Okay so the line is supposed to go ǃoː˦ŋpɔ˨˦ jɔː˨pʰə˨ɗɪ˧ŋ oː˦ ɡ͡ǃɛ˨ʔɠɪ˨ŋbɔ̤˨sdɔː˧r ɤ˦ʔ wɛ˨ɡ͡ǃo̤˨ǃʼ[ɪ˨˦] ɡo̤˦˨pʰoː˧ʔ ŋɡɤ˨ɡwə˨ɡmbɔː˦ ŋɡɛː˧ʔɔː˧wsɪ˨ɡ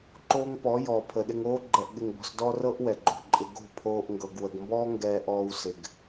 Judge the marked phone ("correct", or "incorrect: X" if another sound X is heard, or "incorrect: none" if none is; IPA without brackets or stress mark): incorrect: ɪ˧